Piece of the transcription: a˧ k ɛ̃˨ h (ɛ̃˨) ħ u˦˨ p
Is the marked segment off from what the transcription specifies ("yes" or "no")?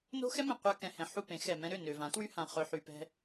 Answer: no